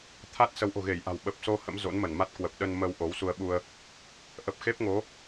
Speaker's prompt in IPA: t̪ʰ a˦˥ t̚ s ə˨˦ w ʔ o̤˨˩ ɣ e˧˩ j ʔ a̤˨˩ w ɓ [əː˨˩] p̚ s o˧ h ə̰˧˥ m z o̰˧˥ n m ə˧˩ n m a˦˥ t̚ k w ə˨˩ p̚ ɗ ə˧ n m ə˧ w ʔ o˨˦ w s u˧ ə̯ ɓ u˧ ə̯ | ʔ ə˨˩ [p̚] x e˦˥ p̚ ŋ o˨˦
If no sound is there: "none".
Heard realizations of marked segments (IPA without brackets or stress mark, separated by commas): ə˨˩, p̚